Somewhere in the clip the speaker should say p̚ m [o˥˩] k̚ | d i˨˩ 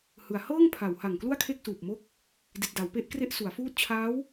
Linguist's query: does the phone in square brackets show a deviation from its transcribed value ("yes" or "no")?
yes